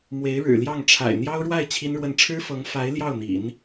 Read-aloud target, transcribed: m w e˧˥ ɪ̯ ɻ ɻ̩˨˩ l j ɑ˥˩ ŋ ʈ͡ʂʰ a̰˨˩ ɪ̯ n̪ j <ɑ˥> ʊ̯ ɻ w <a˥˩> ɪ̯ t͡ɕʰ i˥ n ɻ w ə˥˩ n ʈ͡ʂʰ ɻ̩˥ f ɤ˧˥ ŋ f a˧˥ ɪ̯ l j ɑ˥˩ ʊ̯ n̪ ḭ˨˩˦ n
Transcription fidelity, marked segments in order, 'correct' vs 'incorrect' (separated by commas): correct, correct